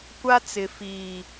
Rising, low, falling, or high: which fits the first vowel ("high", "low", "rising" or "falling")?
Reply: high